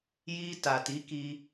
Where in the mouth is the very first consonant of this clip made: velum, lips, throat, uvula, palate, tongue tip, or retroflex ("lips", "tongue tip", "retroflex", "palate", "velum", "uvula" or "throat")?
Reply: palate